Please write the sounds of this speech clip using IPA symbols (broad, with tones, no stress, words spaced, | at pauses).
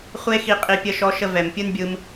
χʷe˦xi˧qʼi˧ pʲə˧ʃɔ˧ʃə˧ vɛ˨m pʲɯ˦nbʲɯ˧m